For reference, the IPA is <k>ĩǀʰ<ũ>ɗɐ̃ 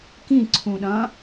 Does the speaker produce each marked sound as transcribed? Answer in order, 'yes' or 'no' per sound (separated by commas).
yes, yes